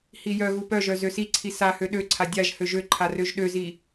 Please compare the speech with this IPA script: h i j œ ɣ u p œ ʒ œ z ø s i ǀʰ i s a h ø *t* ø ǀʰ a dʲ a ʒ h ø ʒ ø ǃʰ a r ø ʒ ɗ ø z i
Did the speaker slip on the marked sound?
yes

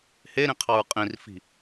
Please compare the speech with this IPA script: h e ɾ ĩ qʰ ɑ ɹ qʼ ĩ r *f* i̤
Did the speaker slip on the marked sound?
no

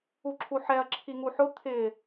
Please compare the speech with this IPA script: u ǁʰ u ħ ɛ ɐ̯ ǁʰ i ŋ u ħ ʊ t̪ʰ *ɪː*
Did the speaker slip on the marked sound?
yes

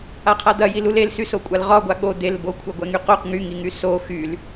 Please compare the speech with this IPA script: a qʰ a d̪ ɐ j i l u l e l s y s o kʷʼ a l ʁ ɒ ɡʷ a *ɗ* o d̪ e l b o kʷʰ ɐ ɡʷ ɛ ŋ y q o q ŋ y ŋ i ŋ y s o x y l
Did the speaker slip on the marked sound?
yes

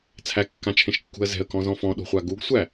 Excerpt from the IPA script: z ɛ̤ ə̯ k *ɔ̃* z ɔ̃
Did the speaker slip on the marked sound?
no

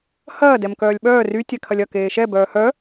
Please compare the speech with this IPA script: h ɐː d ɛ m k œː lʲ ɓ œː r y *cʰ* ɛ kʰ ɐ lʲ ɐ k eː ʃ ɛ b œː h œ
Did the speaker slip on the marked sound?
yes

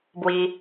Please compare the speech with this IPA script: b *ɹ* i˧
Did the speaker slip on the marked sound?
yes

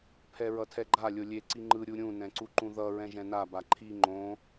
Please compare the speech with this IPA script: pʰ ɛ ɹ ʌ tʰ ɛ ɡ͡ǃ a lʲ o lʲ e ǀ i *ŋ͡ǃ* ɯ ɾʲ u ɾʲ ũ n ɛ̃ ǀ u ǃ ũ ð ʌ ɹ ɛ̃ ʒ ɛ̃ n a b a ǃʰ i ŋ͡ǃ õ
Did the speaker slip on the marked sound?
no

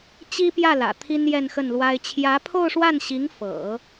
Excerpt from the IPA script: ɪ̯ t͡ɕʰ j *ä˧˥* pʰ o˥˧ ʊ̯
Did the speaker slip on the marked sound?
no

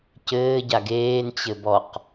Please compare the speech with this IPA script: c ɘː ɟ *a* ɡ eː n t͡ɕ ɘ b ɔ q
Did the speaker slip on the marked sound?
no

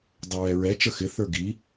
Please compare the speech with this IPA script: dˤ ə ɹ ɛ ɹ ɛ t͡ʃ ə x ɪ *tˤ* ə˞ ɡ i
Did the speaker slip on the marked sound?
yes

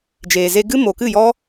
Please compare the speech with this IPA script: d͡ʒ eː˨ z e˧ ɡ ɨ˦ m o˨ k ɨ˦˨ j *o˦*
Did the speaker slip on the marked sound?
yes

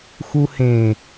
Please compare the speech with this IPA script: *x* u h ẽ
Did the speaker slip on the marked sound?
no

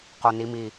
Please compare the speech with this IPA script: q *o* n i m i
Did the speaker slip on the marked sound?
no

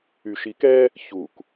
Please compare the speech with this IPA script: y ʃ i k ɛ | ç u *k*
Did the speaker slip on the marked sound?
no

